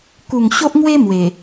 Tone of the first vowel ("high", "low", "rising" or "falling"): low